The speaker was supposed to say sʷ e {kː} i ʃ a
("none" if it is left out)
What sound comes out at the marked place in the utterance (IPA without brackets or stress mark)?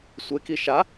k